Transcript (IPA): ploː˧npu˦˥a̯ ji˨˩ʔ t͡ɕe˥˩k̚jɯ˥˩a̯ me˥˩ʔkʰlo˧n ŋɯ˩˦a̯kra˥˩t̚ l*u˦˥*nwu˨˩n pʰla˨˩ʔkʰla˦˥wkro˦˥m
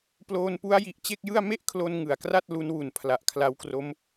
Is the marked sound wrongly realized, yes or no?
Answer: no